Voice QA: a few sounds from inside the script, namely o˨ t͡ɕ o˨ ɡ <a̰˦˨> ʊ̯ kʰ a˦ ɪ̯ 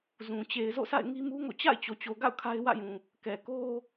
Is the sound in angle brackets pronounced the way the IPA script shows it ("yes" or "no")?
yes